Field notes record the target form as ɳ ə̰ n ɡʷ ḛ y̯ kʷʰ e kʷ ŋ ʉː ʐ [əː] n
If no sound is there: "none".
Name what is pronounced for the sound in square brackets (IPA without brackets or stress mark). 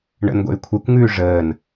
əː